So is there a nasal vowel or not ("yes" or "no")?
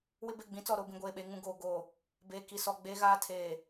yes